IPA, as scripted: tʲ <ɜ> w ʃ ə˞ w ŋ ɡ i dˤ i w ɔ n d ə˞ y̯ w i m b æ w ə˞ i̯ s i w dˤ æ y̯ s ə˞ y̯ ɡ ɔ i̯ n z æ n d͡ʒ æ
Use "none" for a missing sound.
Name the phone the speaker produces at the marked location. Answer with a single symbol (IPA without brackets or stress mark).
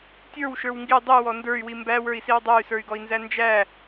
ə˞